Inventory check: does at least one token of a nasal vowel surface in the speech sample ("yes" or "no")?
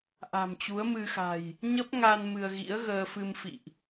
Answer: no